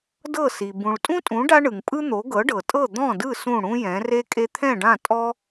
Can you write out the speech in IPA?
d ɤ˥˩ s i˩ b ũ˩ ɭ tʼ ũ˥ tʼ ũ˩˥ ɖ a˥ ɳ ɯ˩ ŋ pʼ ɯ˥ n̪ o˩˥ ɡ ɤ˩˥ ɖ ɤ˩ tʼ ɤ˥˩ d̪ ɔ̃˥˩ d ɯ˥˩ s ũ˥˩ ɽ ũ˥ j ɛ̃˩˥ r e˥ kʼ e˧ t̪ʰ ɛ̃˥˩ ɖ ã˥˩ tʼ ɔ˥

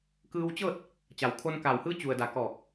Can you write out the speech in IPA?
k ɯː˧ w t͡ɕ ɤː˥˨ t̚ | t͡ɕ a˩ w kʰ o˧ n k a˧˩ w h ɯː˧˥ t͡ɕ u˩ ə̯ d a˩ k ɔː˧˩ k̚

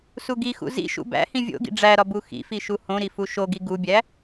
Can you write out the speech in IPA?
s u ɡ i x ṵ z ḭ ʃ ṵ b æ̰ h ĩ vʲ o̰ ɡ ḭ ɖ͡ʐ æ ɾ ɒ b u x ḭ f i ʃ u h õ ɾ i f u ʃ o ɡ i ɡ u bʲ æ

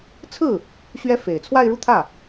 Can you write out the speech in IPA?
t͡sʰ ɹ̩˥˩ | ɕ ɥ ɛ˥ f e˨˩ ɪ̯ t͡sʰ w a˥˧ ɪ̯ ɻ u˥˧ t̪ʰ ä˥˩

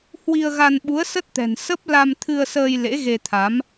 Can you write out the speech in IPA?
h w i˧ ə̯ ɣ a˧ n ɓ u˨˦ ə̯ s ə˦˥ t̚ t̪ ɛ̤˨˩ n s ə˦˥ p̚ l a˧ m t̪ʰ ɨ˧ ə̯ s əː˧ j l ḛ˧˥ ɣ e˧ t̪ʰ a˨˦ m

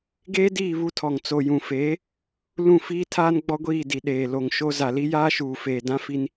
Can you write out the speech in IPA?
ɡ eː˦ d iː˦˨ β u˦ tʰ ɔ˨ ŋ t͡s o˨ j ũ˨ f eː˨˦ | l ũ˦˨ f iː˦ tʰ aː˦ n ɡ͡b ɔ˦ ɡʷ iː˦˨ d i˨ ɗ eː˨ l o˨ ŋ ʃ o˦ z a˨ l i˦ j aː˦ ʃ uː˨ f eː˨ d ã˦ f i˦ n

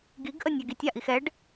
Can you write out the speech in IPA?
ɡ i ɡ ʔ ə nʲ a ɡ i tʲ a ʔ i x ɛ ɖ

